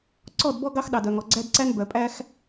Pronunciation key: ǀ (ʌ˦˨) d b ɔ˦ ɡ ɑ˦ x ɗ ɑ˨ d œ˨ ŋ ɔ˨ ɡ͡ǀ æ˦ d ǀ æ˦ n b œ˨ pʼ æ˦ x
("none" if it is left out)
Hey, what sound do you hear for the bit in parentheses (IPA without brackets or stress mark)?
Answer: ɔ˦˨